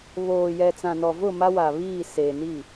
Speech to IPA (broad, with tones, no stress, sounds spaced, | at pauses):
β oː˨ j ɛ˨ t͡s ã˨ n ɔ˨ v ʊ˦˨ m a˦ w a˨ β iː˦˨ s eː˨ n i˦˨